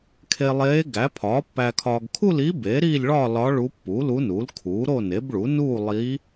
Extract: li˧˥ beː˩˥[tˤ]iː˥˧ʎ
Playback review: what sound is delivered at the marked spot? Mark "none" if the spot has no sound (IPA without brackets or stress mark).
ɾ